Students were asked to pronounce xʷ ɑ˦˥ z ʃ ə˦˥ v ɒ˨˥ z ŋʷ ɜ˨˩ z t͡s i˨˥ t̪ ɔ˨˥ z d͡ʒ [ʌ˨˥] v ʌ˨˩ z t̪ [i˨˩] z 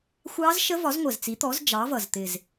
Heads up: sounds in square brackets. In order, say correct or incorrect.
incorrect: ɑ˨˥, incorrect: ɪ˨˩

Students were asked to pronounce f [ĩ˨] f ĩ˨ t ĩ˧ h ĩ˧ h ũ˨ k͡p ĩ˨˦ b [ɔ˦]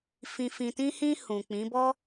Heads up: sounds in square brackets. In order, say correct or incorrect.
correct, correct

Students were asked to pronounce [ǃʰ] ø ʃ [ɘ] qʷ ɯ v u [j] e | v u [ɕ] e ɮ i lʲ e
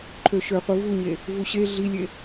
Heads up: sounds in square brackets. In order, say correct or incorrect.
correct, incorrect: ø, incorrect: ɲ, correct

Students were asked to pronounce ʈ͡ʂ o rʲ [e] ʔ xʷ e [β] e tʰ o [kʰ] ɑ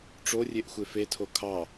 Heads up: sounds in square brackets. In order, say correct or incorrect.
correct, incorrect: f, correct

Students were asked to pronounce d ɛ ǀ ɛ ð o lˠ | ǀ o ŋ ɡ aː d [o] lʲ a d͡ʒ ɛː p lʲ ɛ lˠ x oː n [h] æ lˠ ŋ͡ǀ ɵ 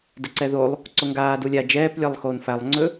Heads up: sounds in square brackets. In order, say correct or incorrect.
incorrect: u, incorrect: f

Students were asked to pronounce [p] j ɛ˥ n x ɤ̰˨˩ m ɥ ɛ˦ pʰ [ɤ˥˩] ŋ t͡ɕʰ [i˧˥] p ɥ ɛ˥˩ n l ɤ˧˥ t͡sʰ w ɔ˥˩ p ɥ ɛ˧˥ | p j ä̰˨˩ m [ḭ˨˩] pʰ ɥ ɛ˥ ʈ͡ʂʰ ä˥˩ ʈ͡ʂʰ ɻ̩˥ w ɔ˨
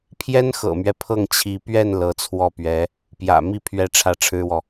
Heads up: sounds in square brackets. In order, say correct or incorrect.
incorrect: pʰ, correct, correct, incorrect: i˥˩

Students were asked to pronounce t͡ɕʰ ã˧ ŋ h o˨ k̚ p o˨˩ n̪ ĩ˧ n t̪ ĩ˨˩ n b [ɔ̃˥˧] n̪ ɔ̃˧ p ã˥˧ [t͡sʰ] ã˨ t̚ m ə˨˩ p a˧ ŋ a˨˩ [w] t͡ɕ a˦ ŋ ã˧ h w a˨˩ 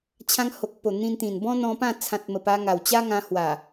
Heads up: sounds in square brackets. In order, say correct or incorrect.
incorrect: ɔ̃˦, correct, correct

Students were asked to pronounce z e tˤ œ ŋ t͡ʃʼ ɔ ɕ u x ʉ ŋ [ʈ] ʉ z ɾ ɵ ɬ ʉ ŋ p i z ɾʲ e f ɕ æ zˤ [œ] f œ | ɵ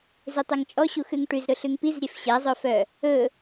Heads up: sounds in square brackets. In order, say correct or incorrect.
correct, correct

